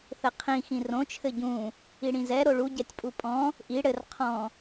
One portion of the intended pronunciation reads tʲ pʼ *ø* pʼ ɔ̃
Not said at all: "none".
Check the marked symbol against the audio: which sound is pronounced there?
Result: u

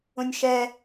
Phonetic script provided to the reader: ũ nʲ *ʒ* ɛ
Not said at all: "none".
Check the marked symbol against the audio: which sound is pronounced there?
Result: ʃ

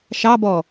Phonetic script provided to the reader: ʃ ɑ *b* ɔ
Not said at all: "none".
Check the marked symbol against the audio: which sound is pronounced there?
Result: b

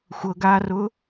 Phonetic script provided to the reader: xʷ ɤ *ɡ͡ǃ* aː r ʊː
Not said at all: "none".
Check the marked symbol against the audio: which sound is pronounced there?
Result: ɡ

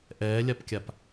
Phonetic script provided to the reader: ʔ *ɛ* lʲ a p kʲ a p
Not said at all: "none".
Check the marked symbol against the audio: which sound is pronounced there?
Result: ɛː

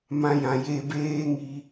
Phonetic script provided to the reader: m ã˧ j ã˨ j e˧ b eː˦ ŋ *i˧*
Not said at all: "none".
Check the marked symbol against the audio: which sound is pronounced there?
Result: i˧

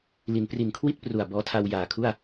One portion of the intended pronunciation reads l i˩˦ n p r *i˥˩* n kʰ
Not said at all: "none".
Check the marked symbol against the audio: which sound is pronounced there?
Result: i˨˩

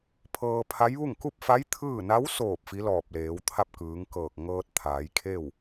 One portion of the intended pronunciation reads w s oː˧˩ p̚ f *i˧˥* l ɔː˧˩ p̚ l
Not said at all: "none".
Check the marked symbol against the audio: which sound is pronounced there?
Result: i˧˥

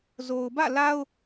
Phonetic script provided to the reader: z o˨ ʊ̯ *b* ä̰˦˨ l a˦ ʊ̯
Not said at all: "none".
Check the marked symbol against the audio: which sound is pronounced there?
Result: b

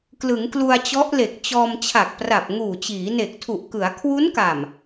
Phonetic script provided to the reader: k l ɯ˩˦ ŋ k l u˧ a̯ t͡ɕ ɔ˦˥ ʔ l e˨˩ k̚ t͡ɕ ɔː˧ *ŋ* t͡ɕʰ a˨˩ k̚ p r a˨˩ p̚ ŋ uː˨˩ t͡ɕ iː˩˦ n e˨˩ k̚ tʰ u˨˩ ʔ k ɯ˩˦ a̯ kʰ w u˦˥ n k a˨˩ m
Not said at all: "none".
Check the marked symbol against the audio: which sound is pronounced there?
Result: m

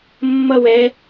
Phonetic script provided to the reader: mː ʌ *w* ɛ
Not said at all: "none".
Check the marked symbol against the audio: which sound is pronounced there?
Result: w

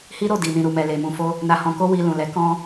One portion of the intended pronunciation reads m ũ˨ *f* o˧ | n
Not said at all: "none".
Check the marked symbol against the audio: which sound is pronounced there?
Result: f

